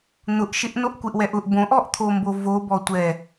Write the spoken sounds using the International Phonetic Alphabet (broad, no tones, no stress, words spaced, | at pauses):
n̪ʊʔʃɪʔ noʔkʷeʔwɛʔʊʔ bõʔɔʔ t̪ʰombovo bɔtʷɛ